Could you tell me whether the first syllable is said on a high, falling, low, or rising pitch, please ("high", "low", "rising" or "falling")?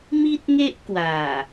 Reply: high